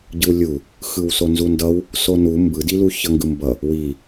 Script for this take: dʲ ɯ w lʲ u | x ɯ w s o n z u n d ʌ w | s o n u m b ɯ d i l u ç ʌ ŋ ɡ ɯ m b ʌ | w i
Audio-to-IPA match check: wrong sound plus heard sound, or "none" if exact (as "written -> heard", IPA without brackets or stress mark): dʲ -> ɟ